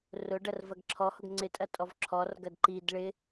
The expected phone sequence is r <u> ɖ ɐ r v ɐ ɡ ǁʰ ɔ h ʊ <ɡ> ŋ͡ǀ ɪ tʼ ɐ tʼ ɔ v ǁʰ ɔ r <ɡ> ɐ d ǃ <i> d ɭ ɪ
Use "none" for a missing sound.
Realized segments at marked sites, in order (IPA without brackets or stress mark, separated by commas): ʊ, ɡ, ɡ, i